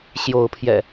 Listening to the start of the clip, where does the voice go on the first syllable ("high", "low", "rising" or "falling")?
rising